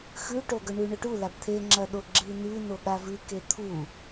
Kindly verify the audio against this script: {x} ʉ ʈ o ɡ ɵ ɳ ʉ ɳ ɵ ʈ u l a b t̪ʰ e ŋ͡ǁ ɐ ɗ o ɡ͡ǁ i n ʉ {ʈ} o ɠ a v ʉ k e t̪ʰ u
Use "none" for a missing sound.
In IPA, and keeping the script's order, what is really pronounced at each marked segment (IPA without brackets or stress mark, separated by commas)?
x, n